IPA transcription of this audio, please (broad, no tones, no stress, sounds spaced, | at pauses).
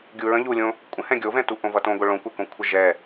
ɡʲ u ɹ ə̃ ʎ u lʲ õ | kʷʼ ə̃ h ɛ̃ ɡʲ o v ɛ̃ t u ʔ õ v ʌ t õ ɡʷ ə ɭ õ kʷ ɛ k õ kʷʰ ə ʒ ɛ